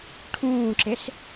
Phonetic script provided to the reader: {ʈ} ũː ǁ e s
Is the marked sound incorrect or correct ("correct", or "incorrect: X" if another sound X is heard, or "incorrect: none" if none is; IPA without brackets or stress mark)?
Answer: incorrect: ʈʰ